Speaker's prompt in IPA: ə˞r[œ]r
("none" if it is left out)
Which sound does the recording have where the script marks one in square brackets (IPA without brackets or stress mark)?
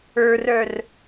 œ